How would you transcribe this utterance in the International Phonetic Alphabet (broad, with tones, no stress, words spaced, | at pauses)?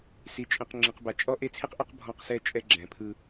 si˨t͡ʃʼĩ˨q ŋ͡ǁĩ˨qba˨ t͡ʃʼɔ˦ʔe˦t͡sʰi˦qʔɤ˦q bʱɔ̃˦˨qsɛ˦t͡ʃʼɛ˦ ɡ͡ǁɛ̃˨pʰɯ˦